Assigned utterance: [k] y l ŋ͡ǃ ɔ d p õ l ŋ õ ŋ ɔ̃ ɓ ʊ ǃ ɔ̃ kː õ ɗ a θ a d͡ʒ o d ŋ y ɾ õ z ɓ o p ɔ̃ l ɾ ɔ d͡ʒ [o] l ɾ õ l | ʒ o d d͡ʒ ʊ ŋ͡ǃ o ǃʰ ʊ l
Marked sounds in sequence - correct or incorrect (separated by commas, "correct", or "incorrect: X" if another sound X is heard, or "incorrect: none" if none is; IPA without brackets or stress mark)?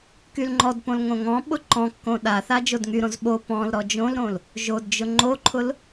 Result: correct, incorrect: õ